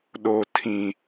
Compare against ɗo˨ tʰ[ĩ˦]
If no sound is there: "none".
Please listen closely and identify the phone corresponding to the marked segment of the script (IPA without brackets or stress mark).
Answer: ĩ˨